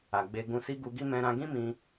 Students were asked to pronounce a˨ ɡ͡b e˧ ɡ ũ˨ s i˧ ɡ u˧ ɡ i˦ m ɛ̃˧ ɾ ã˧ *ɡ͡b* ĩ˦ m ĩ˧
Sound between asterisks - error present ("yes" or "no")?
yes